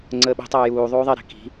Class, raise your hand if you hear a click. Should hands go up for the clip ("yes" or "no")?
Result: yes